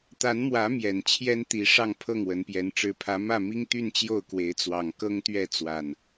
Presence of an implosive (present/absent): absent